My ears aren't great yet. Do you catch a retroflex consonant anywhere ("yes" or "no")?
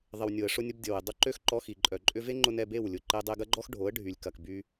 yes